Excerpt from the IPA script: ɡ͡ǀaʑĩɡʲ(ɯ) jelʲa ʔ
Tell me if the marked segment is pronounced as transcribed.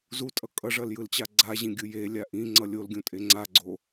yes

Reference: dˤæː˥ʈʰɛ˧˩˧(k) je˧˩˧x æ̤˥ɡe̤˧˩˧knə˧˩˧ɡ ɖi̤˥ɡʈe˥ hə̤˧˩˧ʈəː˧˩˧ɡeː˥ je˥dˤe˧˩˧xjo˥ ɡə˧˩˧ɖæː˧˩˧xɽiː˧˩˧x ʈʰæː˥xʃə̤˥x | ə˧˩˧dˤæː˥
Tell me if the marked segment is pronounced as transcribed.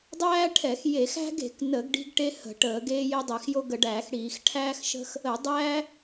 no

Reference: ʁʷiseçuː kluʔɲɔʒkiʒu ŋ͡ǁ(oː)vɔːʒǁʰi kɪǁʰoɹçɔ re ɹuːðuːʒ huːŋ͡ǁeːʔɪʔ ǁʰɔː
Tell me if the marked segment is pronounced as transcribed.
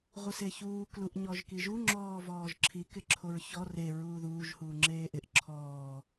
no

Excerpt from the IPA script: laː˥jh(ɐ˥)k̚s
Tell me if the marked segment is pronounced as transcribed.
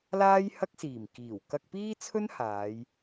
yes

